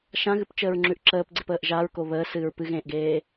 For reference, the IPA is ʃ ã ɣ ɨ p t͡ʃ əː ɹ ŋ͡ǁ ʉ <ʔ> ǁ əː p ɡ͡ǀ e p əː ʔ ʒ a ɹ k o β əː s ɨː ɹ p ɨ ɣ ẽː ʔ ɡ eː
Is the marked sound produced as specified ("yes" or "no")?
yes